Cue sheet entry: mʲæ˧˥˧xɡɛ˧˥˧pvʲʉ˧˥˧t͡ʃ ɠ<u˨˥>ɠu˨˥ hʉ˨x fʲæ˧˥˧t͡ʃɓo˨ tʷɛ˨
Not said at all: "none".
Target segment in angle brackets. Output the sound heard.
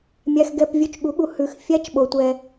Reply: u˨˥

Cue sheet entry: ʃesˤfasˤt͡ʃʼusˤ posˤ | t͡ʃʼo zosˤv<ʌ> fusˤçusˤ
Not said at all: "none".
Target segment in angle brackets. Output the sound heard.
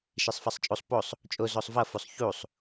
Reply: ʌ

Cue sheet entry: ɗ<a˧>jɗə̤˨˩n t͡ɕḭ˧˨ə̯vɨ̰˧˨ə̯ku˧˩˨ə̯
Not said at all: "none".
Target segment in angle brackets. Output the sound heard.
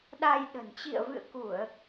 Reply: a˧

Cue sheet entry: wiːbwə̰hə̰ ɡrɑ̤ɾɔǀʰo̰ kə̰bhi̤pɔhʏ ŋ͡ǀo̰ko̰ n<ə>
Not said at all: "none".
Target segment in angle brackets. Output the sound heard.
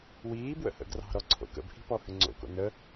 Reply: ə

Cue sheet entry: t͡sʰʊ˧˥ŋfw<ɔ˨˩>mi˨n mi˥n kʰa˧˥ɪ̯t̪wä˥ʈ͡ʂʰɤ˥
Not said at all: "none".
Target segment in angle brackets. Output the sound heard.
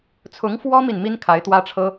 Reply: ɔ˥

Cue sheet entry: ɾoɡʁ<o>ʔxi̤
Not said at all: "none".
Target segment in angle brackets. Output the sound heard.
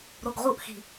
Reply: u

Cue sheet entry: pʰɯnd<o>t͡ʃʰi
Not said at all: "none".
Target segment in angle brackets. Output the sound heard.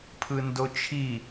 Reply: o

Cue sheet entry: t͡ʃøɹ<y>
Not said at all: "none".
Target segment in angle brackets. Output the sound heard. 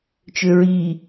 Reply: i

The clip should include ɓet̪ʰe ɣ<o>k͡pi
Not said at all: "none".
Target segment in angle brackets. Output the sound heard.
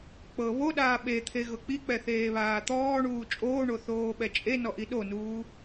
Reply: ɤ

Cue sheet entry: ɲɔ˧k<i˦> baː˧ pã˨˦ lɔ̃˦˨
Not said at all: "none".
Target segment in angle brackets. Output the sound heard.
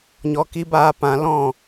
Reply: i˦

